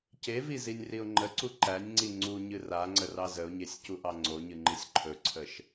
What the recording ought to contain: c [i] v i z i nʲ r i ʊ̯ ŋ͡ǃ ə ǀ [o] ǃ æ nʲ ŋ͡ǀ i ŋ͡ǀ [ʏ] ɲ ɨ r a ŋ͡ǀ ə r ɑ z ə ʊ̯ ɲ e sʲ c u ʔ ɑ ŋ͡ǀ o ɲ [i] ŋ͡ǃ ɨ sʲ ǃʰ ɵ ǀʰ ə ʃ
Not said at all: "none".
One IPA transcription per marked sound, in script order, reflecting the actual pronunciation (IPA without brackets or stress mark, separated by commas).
e, u, u, ɨ